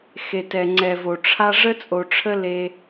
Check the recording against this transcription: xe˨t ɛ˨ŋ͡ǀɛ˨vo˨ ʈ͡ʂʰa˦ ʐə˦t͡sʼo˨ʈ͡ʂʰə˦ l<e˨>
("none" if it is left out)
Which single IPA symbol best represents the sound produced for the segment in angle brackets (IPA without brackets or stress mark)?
e˦